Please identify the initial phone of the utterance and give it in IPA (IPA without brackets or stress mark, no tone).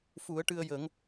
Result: f